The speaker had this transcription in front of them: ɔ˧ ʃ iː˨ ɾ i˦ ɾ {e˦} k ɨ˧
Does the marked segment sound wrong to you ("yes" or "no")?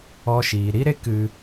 no